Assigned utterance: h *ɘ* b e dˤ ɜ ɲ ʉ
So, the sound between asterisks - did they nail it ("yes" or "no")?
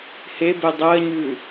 no